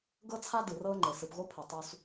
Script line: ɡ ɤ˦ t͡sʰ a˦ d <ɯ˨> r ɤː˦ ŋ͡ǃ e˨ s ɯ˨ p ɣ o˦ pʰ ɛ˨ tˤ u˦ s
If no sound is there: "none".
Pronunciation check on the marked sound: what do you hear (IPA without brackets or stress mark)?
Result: ɯ˨